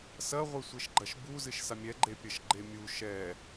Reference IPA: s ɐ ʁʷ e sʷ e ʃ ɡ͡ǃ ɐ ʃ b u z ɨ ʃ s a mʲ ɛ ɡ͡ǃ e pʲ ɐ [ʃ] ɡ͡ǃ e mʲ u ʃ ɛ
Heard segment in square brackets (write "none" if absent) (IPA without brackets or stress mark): ʃ